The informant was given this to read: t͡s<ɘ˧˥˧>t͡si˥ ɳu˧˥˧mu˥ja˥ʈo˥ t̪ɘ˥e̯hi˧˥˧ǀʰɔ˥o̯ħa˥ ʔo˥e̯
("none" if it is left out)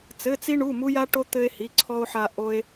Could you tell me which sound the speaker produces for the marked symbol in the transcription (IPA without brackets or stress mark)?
ɘ˧˥˧